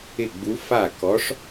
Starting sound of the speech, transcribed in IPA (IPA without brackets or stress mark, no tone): ɪ